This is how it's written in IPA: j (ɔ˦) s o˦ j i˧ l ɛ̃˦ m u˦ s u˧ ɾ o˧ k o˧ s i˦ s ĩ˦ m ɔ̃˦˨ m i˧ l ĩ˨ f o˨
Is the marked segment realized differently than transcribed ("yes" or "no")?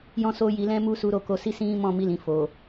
yes